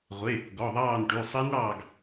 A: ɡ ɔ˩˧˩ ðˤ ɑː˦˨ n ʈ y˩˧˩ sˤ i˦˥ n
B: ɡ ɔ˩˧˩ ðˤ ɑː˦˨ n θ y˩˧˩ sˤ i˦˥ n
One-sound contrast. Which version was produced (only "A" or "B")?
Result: A